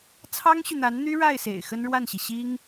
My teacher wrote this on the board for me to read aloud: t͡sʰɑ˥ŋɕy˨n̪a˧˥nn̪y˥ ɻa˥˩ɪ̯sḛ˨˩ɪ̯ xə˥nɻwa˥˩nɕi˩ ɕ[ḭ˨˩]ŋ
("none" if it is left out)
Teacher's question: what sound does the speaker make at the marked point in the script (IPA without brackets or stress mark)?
i˥